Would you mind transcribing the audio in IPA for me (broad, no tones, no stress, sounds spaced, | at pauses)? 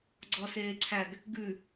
ɡ͡ǀ ɔ s eː ǀʰ æ ɡ | ɡ ʉ